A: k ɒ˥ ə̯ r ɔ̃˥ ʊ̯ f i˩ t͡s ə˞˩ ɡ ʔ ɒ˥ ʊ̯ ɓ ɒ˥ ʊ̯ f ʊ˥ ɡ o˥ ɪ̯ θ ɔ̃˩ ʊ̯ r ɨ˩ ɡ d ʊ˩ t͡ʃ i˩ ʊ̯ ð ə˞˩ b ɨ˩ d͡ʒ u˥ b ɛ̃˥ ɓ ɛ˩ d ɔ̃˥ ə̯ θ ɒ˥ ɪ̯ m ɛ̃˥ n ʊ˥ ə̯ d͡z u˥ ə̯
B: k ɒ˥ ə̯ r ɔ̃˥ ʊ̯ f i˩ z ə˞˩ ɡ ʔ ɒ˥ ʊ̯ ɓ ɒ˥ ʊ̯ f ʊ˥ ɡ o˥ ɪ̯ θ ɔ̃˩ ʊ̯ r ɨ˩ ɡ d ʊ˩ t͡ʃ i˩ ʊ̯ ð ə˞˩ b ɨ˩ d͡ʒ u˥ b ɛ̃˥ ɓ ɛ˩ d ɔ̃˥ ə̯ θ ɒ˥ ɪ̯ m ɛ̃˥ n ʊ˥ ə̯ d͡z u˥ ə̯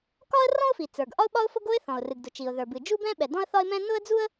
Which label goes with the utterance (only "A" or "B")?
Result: A